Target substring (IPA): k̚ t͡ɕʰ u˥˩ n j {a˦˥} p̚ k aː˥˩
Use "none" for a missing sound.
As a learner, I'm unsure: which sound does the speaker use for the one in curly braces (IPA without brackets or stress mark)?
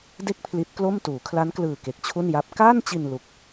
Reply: a˦˥